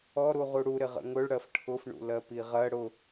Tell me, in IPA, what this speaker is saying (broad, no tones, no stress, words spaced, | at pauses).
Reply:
ɔɾu ʁuɽu ɾɪʁə̰ŋʊɭ ɽɜfʈʰʊfɳṵ lɜpiʁɜ ɽʊ